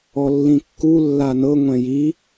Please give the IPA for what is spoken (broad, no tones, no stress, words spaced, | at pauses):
ɔlːĩkːu lːanɤ ŋʷɛ̃ji